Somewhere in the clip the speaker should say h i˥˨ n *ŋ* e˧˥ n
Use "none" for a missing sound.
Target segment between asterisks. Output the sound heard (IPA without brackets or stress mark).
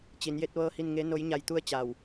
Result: ŋ